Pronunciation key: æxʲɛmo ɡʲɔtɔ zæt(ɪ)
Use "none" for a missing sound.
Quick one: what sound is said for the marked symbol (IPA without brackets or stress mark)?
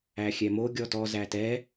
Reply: ɛ